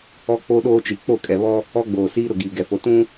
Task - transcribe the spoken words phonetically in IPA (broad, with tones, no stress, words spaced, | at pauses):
ɔ˦k͡po˦ɗoː˦t͡ʃi˨ k͡po˦˨kʼɛ˨βɔ˦ | ɔ˦ɡ͡boː˨siː˦ ɾʊ˨ɡiː˨ɡɛ˨fo˨ tũ˦